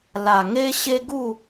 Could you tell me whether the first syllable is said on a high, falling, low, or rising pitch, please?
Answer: low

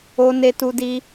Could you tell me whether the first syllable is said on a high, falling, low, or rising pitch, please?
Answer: high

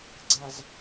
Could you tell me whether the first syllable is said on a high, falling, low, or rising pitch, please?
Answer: low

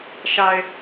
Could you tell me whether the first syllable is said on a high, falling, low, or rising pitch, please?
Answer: low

